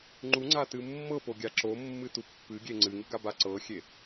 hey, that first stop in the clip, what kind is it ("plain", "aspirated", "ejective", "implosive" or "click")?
click